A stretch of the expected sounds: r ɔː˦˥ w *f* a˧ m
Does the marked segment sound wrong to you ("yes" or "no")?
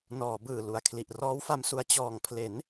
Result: no